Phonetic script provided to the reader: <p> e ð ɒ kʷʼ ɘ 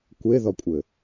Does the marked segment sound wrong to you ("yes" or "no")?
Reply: yes